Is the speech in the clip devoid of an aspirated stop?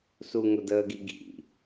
yes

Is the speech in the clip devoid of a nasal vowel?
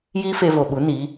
yes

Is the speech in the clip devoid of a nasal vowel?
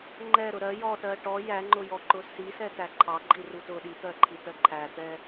yes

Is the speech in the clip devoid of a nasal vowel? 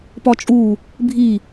yes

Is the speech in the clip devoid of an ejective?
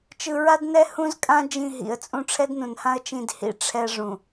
no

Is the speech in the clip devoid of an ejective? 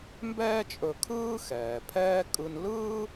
no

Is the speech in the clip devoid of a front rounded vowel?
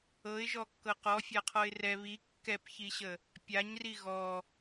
yes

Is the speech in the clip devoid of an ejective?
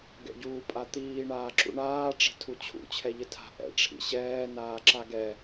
no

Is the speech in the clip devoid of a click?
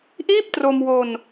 yes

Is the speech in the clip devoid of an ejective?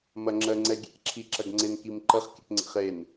yes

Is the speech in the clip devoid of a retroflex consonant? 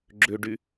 no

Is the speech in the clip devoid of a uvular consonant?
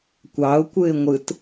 yes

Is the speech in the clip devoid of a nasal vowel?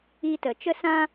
no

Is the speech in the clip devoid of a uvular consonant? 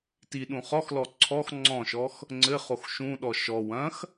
no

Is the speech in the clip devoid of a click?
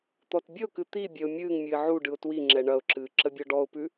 no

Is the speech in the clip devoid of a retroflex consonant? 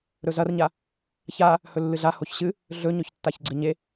yes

